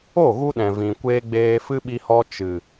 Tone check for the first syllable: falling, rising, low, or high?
falling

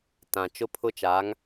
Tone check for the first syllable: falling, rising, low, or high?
low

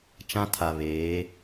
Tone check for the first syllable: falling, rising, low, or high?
high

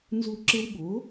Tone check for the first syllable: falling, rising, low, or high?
falling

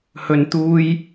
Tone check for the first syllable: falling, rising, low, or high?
low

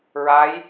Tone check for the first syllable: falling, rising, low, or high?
rising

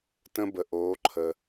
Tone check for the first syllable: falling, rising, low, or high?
high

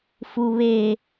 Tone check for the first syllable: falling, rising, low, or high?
low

